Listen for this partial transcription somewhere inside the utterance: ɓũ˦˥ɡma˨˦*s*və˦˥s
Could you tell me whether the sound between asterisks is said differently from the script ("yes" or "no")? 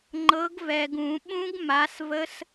no